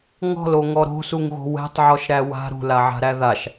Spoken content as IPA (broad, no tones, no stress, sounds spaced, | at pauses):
ŋ ɔ̤ l o ŋ ɔ ɾ o̤ s u ŋ ɣ o̤ w ɛ̤ tˤ ʕ ɔ ʃ ɾ æ w a̤ ɾ ṳ l a ʕ a̤ ɾ æ ð a ʃ